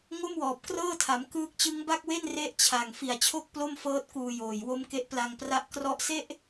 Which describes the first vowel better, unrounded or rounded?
rounded